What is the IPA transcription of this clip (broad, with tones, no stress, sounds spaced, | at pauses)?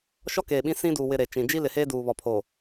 ʃ ɔ˦ k eː˨ ɓ ĩ˦ s ĩ˦ d uː˨ w ɪ˨ ɾ e˨ t͡ʃ ĩ˨ d͡ʒ i˦ l ɪ˨ h eː˦ d uː˨ β ɔ˨ pʰ o˨